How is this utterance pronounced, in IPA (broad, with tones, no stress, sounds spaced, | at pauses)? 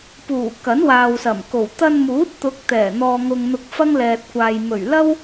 p uː˨˩ k ɐ˨˥ n w aː˨ w s ɐ˨˩ m k o˨˩ w t̪ ɐ˧ n m uː˨˥ t̚ t̪ ʊ˨˥ k̚ t̪ ɛː˨˩ n̪ ɔː˨ ŋ ʊ˨ ŋ n̪ ʊ˧ k̚ f ɐ˥ ŋ l ɛː˨ t̚ kʷ aː˨ j m ɵ˨˩ ɥ l ɐ˥ w